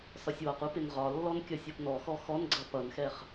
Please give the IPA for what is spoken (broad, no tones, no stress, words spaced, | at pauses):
sɒsʲwɒqu pɪnʁɒlːɔn kʲʌsʲɔpnɔxɔ xɔnɡ͡ǀʌ pʌnxɛχ